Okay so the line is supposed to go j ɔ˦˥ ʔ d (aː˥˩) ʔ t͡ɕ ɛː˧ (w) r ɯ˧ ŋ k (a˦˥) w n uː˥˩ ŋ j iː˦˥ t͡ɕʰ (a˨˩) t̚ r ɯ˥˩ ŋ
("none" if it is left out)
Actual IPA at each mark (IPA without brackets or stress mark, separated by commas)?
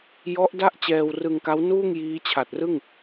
a˥˩, w, a˦˥, a˨˩